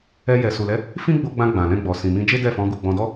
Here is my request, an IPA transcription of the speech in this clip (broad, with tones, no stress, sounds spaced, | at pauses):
ɛ˧ j ɛ˨ s u˨ l ɛ˨˦ | f ĩ˦ ɡ͡b o˧ ɡ͡b ã˧ ɡ͡b ã˨ l ɛ̃˧ ɡ͡b ɔ˨ s ĩ˨ m ĩ˧ d͡ʒ e˦ d ɛ˦˨ f ɔ̃˨˦ ɡ u˦˨ ɡ͡b ɔ̃˧ d ɔ˦